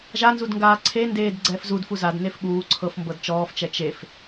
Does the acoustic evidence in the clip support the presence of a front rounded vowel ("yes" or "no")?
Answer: no